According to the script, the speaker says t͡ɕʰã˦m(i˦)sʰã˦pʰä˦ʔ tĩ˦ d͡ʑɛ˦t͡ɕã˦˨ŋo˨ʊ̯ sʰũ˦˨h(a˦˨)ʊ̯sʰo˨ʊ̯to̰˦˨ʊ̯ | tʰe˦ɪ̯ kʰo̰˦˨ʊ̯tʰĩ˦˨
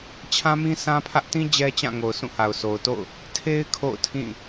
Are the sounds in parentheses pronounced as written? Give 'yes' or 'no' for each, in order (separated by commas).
no, no